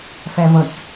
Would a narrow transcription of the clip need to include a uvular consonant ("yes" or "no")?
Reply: no